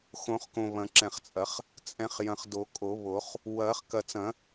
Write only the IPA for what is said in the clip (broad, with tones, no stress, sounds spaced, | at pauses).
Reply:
x õ˨˩˦ χ k õ˨ β ɐ̃˨ ǁ ɛ̃˨ χ t͡sʼ ɐ˨˩˦ χ | t͡sʼ ɛ̃˨ χ j ɐ̃˨ χ d o˨˩˦ kʼ o˨˩˦ β o˨˩˦ χ | w ɐː˨˩˦ χ k ɐ˨ t͡s ɐ̃˨˩˦